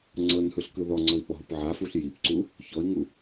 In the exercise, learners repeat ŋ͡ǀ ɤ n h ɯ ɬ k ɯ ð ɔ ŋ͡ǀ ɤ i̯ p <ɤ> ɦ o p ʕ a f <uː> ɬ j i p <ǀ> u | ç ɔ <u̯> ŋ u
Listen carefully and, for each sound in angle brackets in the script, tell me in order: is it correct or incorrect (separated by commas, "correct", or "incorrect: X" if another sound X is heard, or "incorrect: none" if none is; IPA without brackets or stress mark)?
incorrect: ɔ, incorrect: u, correct, incorrect: i̯